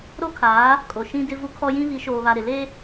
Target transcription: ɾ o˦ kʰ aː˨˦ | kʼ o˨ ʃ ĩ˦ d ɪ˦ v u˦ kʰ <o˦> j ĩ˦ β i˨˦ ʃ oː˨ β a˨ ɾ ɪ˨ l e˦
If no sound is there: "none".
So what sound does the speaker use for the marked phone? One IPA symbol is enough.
ɔ˦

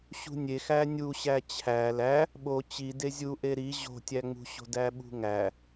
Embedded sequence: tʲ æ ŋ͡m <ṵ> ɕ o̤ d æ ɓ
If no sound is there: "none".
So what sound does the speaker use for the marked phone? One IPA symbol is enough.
ṳ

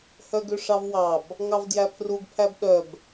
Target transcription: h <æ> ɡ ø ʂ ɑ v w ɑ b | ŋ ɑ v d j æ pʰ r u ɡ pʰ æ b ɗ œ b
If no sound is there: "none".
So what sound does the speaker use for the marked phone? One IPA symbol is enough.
œ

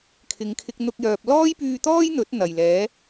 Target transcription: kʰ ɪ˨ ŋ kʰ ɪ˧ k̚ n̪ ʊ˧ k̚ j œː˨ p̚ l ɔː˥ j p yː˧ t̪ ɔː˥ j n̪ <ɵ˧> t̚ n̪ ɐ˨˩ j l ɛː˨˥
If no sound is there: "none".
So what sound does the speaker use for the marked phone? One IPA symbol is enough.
ɵ˨˥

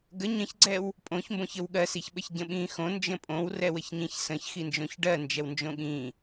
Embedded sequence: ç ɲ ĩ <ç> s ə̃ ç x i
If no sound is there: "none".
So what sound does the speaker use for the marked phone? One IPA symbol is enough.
ç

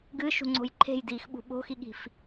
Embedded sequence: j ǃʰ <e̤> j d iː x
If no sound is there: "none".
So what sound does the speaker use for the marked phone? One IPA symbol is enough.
e̤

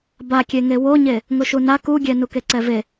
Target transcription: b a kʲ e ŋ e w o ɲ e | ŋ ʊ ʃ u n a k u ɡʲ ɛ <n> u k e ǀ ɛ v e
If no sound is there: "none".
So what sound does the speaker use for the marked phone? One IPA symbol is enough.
n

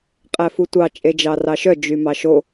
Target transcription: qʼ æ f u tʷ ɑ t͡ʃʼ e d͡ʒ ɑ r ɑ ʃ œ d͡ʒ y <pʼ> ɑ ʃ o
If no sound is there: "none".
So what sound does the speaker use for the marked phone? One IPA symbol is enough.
m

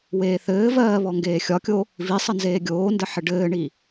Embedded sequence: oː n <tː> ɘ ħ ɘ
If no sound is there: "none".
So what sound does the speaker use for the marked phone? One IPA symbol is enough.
d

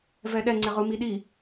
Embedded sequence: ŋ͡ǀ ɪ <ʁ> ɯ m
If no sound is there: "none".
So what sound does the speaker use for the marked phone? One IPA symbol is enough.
ʁ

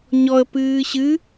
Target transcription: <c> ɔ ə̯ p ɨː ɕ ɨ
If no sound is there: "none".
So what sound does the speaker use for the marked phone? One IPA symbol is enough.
ɲ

